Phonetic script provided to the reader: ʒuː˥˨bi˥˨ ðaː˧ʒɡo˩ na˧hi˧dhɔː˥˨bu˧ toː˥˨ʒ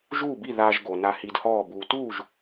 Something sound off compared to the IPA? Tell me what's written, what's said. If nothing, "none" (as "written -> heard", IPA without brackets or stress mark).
oː˥˨ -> uː˥˨